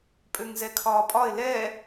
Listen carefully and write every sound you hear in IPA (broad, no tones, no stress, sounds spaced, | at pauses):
pʼ ø ŋ z ɛ kʰ ɒː pʼ ɒ ɪ̯ l ɛ